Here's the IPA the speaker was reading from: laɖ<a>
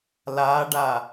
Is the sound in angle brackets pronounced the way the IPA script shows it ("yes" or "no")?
yes